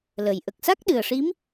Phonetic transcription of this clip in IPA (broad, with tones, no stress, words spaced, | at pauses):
lə˨˩˨j ʔə˨˩k̚sa˦˥k̚ɗɨ˨˩ə̯ʂi˧˥m